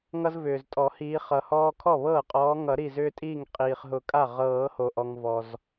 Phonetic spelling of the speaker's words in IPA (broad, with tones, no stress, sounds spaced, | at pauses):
ŋ ʌ˦ z v ʏː˩ z tʼ ɔ˨˩˦ h iː˨˦ χ ʌ˩ h ɔː˦ kʰ ɔ˥˩ β ɤː˥˩ qʼ ɔː˨˦ ŋ ʌ˨˩˦ ɾ i˧˩ z ʏː˦ tʼ iː˥˩ ŋ qʼ iː˩ χ ɦ ʊ˨˩˦ kʼ a˥˩ ʁ ɤː˨˩˦ h o˩ ʔ ɔ˩ ŋ v ɔ˩ z